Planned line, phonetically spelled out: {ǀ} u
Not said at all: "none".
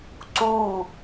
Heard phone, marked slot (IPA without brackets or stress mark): ǀ